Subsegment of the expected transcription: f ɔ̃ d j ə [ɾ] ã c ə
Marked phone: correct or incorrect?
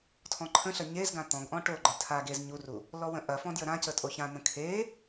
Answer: correct